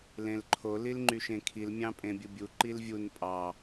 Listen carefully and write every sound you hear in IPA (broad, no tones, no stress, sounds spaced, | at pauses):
l ẽ l ǃʰ o l i l ŋ͡ǃ y ʃ ẽ kʰ i l mʲ ɑ̃ pʼ ẽ bʲ ɯ bʲ u ǃ i l vʲ u n pʼ ɑ